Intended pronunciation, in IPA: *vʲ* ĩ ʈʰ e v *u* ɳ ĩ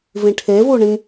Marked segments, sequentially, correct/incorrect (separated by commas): incorrect, correct